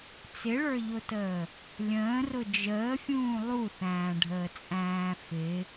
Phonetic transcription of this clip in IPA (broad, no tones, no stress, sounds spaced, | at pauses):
t͡s ɪ ɭ ə˞ ʎ ʊ t əː | lʲ ə̃ː r ʊ d͡ʒ əː fʲ ũː lˠ u θ æ̃ː ɖʱ əː t͡sʼ æ̃ː f ɪ